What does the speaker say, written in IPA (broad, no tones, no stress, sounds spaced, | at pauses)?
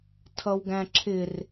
tʰ ʌ w ɡ æ̃ ǁʰ ɪ r